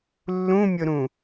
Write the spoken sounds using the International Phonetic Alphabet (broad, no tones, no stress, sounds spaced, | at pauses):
lː ũ mʲ ʊ ɾ ũ